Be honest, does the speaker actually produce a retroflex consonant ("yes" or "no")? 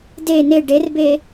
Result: yes